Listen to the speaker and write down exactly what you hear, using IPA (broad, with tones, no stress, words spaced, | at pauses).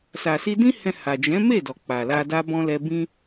sa˨si˧dĩ˦hɛ̃˧ ha˨d͡ʒɛ̃˨˦me˦˨dɔ˨ k͡pa˨la˧ da˧bɔ̃˧lɛ˧ bĩ˦